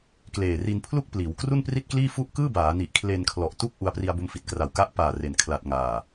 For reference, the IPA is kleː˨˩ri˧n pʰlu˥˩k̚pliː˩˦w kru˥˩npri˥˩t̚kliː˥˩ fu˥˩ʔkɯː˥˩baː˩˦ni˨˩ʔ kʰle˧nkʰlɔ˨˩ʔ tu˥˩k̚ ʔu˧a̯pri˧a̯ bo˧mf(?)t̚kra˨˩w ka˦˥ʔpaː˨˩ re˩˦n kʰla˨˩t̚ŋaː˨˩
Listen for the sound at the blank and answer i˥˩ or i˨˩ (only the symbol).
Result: i˨˩